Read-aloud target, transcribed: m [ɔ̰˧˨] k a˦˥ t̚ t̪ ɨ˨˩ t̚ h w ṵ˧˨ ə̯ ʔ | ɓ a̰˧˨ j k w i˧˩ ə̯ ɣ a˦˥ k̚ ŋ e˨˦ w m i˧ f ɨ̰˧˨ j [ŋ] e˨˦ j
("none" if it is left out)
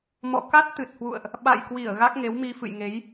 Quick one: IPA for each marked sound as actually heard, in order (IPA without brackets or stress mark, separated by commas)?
ɔ̰˧˨, ŋ